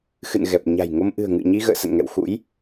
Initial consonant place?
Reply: velar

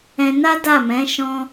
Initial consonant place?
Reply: alveolar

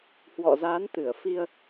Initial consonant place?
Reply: glottal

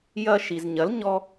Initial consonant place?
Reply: palatal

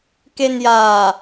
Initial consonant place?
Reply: velar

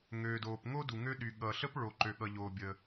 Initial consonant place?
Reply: velar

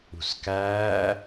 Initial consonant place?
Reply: alveolar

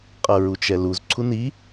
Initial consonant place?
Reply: uvular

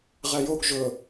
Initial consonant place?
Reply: uvular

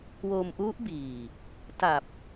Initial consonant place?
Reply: velar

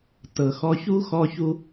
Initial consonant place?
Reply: alveolar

